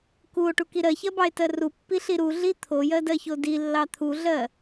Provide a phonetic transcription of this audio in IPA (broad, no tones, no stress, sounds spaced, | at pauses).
k u o̯ ʈ u k i ɾ ɜ ç ɜ b ɑ e̯ t ɜ r u pː i ɬ i ɾ u ɮ i t̪ʰ o j ɜ d ɜ ç o d i lː ɑ t̪ʰ u ɮ ɜ